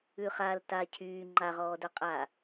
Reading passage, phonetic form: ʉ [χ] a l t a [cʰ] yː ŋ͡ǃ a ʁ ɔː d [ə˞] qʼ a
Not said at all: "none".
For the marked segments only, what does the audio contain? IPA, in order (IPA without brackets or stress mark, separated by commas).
χ, cʰ, ə˞